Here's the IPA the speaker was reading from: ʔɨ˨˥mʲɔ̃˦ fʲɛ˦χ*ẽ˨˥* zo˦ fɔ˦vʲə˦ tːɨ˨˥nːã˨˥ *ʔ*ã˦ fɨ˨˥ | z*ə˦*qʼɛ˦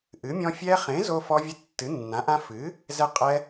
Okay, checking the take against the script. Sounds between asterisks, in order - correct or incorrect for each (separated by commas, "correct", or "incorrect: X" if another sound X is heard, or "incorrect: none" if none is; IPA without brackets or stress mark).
correct, correct, incorrect: ɛ˦